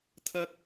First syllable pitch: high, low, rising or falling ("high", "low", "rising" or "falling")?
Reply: high